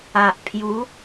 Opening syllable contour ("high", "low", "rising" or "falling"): low